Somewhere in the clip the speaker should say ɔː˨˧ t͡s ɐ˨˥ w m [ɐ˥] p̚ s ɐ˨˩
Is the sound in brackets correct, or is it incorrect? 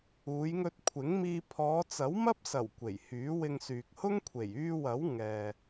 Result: correct